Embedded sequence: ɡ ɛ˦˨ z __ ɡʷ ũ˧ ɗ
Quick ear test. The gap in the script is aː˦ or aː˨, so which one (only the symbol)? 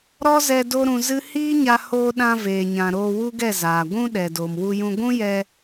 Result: aː˨